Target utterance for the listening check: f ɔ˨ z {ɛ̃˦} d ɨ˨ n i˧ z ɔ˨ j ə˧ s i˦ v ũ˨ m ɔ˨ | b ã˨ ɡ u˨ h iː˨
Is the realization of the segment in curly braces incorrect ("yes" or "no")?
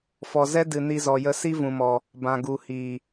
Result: yes